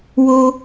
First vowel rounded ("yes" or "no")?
yes